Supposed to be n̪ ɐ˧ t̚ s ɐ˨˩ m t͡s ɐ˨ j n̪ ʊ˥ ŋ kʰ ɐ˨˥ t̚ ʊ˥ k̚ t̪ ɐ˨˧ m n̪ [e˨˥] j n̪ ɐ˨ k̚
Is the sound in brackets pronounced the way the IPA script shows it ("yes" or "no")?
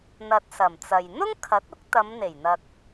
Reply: no